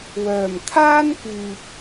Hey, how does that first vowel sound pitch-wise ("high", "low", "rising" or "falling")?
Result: low